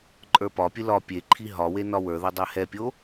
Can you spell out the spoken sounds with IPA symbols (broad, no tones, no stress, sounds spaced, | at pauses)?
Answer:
ǃʼ ə˞ p ɒ pʲ ɨ l ɒ pʲ e ǃʰ i ɦ ɒ w e n ɒ w ə˞ ð ə dˤ ɛ h ɛ pʲ o